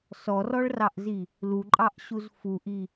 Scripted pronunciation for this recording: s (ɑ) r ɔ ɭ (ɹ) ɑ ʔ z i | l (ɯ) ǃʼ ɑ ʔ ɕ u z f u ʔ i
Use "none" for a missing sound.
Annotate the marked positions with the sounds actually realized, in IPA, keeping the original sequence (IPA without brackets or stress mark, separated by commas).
ɔ, r, u